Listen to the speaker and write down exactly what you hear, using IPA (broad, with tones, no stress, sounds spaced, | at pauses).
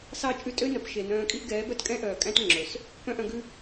s ɑ˦˨ t͡ʃʼ ʉ˦ tʼ ø˦ n œ˨ p ʃ e˨ n œ̃ː˧ kʼ i˦ ʔ ɡ ɛː˨˦ b œ˦ t kʼ ɛ̃˦ ʔ œː˨ kʼ æ̃˦ t ŋ͡ǁ ɵ˨ s | p œ̃˦ ʔ œ̃˧ ɡ ʉ˧